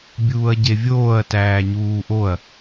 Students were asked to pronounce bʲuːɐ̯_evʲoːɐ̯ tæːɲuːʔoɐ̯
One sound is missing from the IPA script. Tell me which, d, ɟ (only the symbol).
ɟ